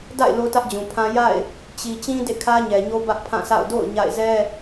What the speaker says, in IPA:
d a̰˦˨ ɪ̯ l o˦ t ä˦ ʔ d͡ʑ ũ˨ pʰ ã˦ j a̰˦˨ ɪ̯ | t͡ɕ i˨ t͡ɕ ĩ˦ d ḛ˦˨ kʰ ä˦ ɲ ɛ˨ ɲ o˦ b ä˦ ʔ pʰ ã˦˨ sʰ a̰˦˨ ʊ̯ d o̰˦˨ ʊ̯ ɲ a̰˦˨ ɪ̯ z ɛ˦

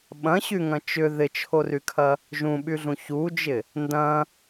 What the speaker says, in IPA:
ɓ ɐ̃ ɕ y ŋ ɐ̃ t͡ʃ ʏ ð ɪ t͡ʃʰ o r y kʰ ɐ | ʒ ũ ɓ y ɮ ũ ç u d͡ʒ ɪ | n d ɐ̃

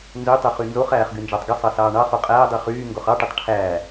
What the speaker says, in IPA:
n z ø tˤ ø χ y n z o χ æː χ ɡ y n d͡ʒ ɑ tˤ ɡ i sˤ ɑ s ɑː ɳ ɑ χ o qʼ æː dˤ i χ yː ŋ ɡ o χ ɑ ʈ e tˤ ʈʰ æː

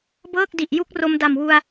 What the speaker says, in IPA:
b ɤː˥˩ k̚ d i˨˩ ʔ j u˥˩ k̚ r o˧ m d a˨˩ m w u˧ a̯

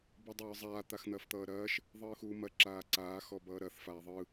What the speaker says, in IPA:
b ɯ dˤ ʌ ɹ zˤ aː t̪ a x n̪ ɐː f t̪ ʌː ɾ ɐː ʃ | ðˤ ɯː x uː m ɐ ǁ aː ǀ aː x ɔ b ʌː ɾ ɐ θ f aː ðˤ ɯ

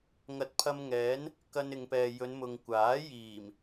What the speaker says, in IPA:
ŋ ɐ˨˥ t̚ pʰ ɐ˧ m ŋ ɛː˨˥ n | k ɐ˧ n ɪ˨ ŋ p ɛː˨ j ɵ˨˧ n m ʊ˨ ŋ kʷ aː˨˥ j iː˨˩ m

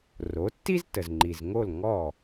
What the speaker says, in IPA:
r o˩˥ tː i˥ z t ə˩ z ŋ͡ǃ i˩ z ŋ o˥˩ l ŋ ɔ˥˩

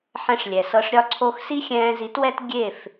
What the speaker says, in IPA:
ħ ɛ̃˧ ʂ lʲ ɛ˨ s ɤ˧ ʂ ɾʲ ɒ˦ ǀʰ o˧ x s i˦ xʲ ɛ̃ː˧ z i˨˦ t w ɛ˦ t ɡʲ e˦˨ f

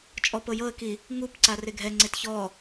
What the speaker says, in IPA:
t͡ʃʼ ɔ p ɤ j ɤ ə̯ k i | ŋ u p ǀ a r e ɡʱ ɛ ŋ͡ǀ e t ç ɔ

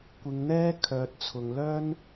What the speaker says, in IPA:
kʷ ɪ˨˧ ŋ n̪ ɛː˥ kʰ œː˨ t̚ t͡sʰ ʊ˨ ŋ l œː˥ n

